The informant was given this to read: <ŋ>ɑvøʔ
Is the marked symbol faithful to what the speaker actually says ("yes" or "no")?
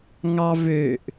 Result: yes